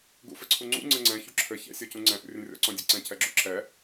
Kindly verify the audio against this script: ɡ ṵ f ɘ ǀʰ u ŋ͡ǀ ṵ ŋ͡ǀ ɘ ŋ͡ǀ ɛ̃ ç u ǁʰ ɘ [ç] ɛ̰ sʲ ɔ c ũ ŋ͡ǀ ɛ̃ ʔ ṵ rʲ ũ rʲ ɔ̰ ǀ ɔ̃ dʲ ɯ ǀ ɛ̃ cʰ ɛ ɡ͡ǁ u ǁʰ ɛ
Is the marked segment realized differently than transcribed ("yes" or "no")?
no